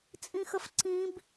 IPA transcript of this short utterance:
t͡sʼ ĩ x ə f ǀ ĩ b

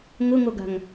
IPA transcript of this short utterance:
ŋ ʊ ŋ o ɡ a̤ ŋ

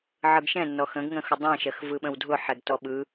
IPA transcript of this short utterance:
ʕ ɯ ɡ ʃ ɛ̃ nː ɔ x ə̃ ɡ ŋ ə̃ x ʊ dˤ ɛ̃ ʃ ɜ x v ɯ ɓ ə̃ w dʱ ʊ ħ ɛ ɡ t ɔ ɓ ɯ

